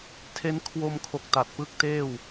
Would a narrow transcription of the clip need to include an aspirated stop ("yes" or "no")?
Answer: yes